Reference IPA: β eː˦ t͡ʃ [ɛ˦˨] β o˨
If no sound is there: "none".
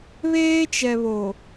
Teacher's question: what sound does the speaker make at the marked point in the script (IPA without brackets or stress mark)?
ɛ˨